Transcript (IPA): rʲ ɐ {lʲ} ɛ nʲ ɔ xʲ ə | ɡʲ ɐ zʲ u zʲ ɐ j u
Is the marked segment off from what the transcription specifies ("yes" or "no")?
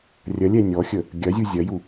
no